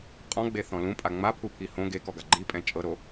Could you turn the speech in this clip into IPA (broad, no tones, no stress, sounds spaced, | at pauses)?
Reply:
qʼ ɔ̃ ɡ͡b e θ ɔ̃ l ũ pʼ a ŋ͡m a pʰ u pʰ i h õ ɡ e k ɔ ɡ a ɡ͡ǃ i pʼ ɛ̃ t͡ʃʼ ɤ ɾ o